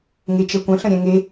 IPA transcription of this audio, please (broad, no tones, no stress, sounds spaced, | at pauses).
ŋ e t͡ʃ ɛ kʷ ə̃ ɬ ə̃ ɾʲ ɛ̃ ŋ e